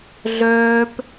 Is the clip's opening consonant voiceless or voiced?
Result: voiced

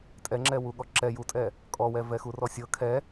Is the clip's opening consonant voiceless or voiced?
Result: voiceless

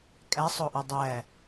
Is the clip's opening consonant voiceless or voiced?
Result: voiceless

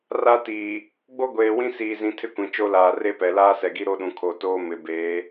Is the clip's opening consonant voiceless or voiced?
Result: voiced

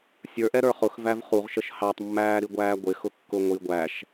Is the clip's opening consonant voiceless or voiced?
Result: voiceless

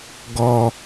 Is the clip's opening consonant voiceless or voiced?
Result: voiced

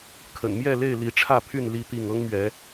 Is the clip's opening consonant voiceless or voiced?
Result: voiceless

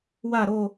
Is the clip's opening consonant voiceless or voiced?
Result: voiced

